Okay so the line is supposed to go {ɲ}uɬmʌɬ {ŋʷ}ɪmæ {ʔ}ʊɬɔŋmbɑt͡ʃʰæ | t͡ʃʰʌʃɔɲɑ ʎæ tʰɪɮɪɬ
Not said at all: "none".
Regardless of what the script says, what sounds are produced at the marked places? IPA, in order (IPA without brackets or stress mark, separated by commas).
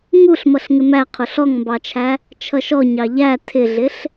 ŋ, ŋ, qʰ